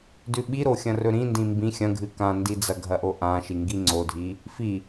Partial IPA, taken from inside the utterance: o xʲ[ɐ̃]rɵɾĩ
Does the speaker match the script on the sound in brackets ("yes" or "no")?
yes